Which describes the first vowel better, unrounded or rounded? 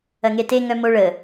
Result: unrounded